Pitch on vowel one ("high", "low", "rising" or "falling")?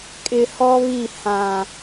low